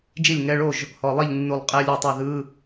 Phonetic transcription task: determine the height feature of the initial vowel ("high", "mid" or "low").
high